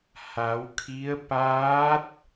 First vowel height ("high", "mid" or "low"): low